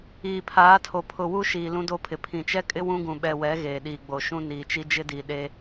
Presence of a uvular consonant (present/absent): absent